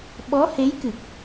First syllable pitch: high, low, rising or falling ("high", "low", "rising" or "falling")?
rising